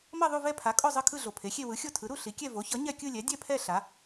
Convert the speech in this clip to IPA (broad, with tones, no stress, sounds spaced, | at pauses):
m ʌ˥˧ ðˤ u˥˧ v ɛ˥˧ pʰ a˩˥ kʼ o˥˧ zˤ ɯ˥˧ kʰ ɯ˥˧ ɮ o˩ pʰ e˩˥ xʲ e˥˧ w ɯ˩˥ xʲ o˥˧ tʰ ɯ˩˥ ɾ u˥˧ ɬ i˩˥ kʲ ɛ˥˧ v o˩˥ ç ʌ˩˥ ɲ ɛ˥˧ kʲ ɯ˥˧ lʲ ɛ˩˥ dʲ ɛ˥˧ pʰ ɛ˥˧ ɬ a˩˥